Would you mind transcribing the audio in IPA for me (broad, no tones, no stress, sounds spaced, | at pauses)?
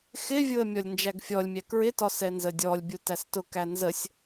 x ɪ vʲ ʊ ə̯ mʲ ɔ lʲ n d͡ʒ æ ɡ fʲ ɔ lʲ mʲ æ k ɹ ɪ t ɒ s ɛ n z ə dʲ ɔ lʲ bʲ u t æ s t ʊ k æ n z ə sʲ